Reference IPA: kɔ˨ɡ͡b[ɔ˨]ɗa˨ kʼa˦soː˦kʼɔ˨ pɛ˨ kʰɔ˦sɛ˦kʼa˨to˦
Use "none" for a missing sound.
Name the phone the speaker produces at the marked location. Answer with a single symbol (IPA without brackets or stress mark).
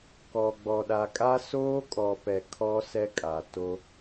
ɔ˨